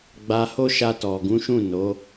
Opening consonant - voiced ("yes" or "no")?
yes